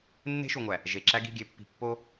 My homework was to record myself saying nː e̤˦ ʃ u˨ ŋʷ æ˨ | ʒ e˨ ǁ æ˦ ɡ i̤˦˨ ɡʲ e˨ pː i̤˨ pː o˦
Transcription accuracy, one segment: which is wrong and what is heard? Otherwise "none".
none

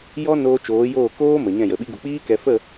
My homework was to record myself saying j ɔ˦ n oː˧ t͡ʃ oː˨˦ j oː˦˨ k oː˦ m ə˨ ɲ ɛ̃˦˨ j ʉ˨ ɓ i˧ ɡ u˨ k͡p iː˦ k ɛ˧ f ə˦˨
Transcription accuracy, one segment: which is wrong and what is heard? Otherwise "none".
ʉ˨ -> ə˨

